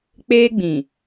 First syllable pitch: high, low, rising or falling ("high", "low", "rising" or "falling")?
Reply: high